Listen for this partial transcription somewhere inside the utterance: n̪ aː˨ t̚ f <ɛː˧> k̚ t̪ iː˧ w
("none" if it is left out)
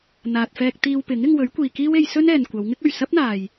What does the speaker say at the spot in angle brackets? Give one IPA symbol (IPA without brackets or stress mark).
ɛː˧